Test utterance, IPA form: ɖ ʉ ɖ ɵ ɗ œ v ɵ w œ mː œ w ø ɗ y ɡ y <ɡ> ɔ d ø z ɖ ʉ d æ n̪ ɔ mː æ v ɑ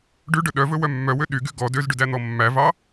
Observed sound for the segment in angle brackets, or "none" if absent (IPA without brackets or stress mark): ɡ